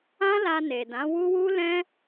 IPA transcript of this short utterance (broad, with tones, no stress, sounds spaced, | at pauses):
ã˦ l a˧ n e˨ d ã˨˦ w u˦ w u˦ l ɛ̃˦